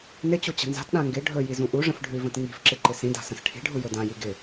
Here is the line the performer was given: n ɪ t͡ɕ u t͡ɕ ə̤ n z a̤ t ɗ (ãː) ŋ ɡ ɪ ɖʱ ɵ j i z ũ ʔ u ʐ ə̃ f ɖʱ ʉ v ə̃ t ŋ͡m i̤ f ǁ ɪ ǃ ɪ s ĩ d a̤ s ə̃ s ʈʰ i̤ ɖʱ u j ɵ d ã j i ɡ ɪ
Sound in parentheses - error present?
yes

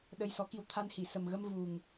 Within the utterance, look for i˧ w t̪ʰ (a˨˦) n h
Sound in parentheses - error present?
yes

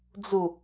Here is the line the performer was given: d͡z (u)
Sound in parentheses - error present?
no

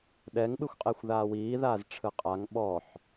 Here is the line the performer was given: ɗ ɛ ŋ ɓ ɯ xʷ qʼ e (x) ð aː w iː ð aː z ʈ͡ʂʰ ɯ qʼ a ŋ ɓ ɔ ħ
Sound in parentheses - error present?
yes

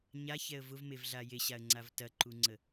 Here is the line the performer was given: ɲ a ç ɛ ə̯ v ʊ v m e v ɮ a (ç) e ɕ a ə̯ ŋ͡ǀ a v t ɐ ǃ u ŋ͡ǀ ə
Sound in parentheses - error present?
yes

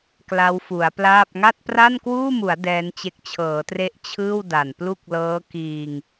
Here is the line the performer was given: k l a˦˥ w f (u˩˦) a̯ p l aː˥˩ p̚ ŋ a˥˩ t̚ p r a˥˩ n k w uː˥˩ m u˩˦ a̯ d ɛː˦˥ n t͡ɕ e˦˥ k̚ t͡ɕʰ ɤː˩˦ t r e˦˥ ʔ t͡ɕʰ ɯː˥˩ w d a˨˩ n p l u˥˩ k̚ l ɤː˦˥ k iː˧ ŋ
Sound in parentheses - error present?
no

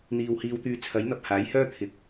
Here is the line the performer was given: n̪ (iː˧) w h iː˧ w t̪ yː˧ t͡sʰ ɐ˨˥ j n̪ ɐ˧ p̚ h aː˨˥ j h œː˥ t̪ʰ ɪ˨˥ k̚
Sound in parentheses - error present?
yes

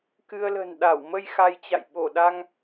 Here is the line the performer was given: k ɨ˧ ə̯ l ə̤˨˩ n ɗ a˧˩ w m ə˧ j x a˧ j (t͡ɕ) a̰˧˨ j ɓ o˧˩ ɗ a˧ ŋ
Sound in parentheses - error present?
no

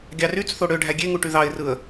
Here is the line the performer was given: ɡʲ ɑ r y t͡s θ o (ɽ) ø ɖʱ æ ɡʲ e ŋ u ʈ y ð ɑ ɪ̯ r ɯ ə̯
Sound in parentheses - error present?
no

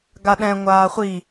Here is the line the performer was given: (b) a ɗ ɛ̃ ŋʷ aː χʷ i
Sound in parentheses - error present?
yes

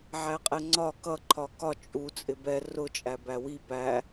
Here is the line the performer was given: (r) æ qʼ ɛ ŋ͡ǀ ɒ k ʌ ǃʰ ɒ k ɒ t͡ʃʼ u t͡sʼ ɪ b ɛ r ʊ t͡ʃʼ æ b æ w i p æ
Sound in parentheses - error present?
yes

